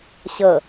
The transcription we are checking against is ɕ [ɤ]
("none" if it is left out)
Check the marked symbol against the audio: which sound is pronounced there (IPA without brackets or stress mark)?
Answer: ɤ